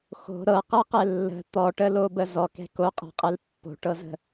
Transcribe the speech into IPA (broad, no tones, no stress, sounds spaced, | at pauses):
x o̤ ɾ ɤ q ɤ q ɛ lː ə̤ t̪ ɔ ʈ ə l o b ə z ɔ k ɛ̤ k o qʼ ɛ̤ qʼ ɛ l pː o̤ ʈ ɤ z ə̤